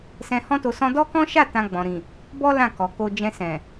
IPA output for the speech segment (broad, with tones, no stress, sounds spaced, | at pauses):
s ɛ̃˧ h ɔ̃˦ t o˧ s ɔ̃˦ d ɔ˦ k ɔ̃˦ ʃ a˦˨ t ã˧ ɡ͡b ɔ̃˨ ɾ ĩ˨ | b ɔ˦ l ã˦˨ k ɔ˨ k o˧ d͡ʒ ɛ̃˧ s ɛ̃˨